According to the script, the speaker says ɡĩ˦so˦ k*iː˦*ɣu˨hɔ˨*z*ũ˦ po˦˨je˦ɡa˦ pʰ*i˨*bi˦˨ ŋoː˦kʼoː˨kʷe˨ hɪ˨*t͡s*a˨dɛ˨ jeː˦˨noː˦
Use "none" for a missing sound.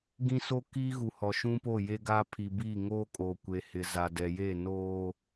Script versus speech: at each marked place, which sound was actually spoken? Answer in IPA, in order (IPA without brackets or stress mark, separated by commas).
iː˦, ʃ, i˨, z